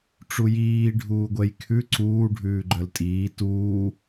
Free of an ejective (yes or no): no